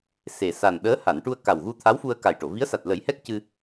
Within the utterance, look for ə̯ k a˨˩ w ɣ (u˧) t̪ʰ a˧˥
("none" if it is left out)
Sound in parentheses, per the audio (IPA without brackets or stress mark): u˧